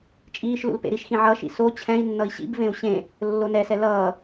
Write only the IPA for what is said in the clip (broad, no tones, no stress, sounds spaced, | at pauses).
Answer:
t͡ʃʼ iː ʃ l ṵ l p ḛ ɾ i ʃ x ĩ ʕ ʌ ʃ ḭ s o t͡ɕʰ ɛ̃ i̯ nː ʌ i̯ ɕ ḭ b v ẽ u̯ ɕ ẽ | lː o n ɛ s ɛ l ʌː